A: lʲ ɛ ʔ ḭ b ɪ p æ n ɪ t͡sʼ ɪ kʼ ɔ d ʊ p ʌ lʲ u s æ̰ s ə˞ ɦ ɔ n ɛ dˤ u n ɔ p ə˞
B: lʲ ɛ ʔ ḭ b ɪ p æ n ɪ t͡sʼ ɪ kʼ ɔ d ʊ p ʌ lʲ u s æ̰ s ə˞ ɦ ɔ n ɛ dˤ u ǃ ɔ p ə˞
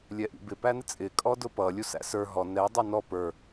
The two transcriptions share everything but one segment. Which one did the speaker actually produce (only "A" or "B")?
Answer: A